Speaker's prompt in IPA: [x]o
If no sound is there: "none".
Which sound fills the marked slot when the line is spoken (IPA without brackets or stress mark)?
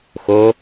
x